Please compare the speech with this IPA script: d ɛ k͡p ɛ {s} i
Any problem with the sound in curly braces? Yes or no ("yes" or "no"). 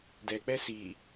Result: no